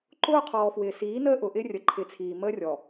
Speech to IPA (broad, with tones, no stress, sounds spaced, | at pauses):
ǃ ʊː˦ qʰ ɔː˨ f w ɪː˨ s iː˨˦ n əː˦ ʔ ʊ˨ ʔ ɪ˦ rʲ ə˨ ǃʰ ɪ˨ t͡sʰ iː˨ m əː˦ rʲ ɔ˨